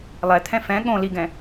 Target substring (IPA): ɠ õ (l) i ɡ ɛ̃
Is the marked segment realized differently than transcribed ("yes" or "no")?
no